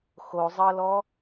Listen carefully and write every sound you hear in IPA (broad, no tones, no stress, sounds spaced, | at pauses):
x o zˤ ɤ l ɔ